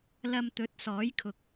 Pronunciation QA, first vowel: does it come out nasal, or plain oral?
oral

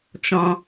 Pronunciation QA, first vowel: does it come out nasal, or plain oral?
nasal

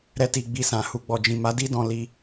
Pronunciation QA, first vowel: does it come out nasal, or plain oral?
oral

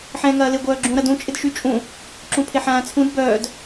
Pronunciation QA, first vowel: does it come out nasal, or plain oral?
nasal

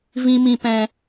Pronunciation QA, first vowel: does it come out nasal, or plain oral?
nasal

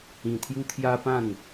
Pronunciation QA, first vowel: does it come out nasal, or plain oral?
nasal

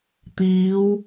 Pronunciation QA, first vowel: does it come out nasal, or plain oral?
oral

